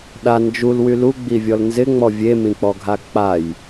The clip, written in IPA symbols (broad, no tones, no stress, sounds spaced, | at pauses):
ɗ a n d͡ʒ u l w y l u ɡ͡b i vʲ ɔ l n z ɪ ŋ͡m ɔ vʲ e m ĩ k͡p ɔ ɡʱ a k͡p a j